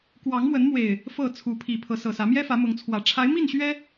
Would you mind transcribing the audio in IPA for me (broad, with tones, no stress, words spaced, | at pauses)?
kwɑ˨˦ŋmwə˨˦nmwe˨˩ɪ̯ | fɤ˥˨t͡sʰu˨˦ pʰi˨˩ pʰɤ˨˦sɤ˨˩sä˨˦ mjɛ˦fä˨˦mʊ˨˦ŋt͡sʰwä˨˩ ʈ͡ʂʰa˨˦ɪ̯mi˥˨n ɕɥɛ˦